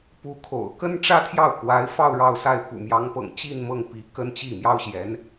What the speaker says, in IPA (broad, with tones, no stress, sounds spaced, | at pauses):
p u˧˥ kʰ o̰˨˩ ʊ̯ k ə˥ n ʈ͡ʂ ä˥ t̪ʰ j ɑ˥˩ ʊ̯ k w a˧˥ ɪ̯ f ɑ˥˧ ʊ̯ ɻ ɑ˥˧ ʊ̯ s a˥˩ ɪ̯ p ṵ˨˩ m j ɑ˧˥ ŋ p ɤ̰˨˩ ŋ t͡ɕ i˥˧ n m ɤ˥˩ ŋ p i˧˥ k ə˥ n t͡ɕ i˥˩ m j ɑ˥ ʊ̯ ɕ j ɛ˧˥ n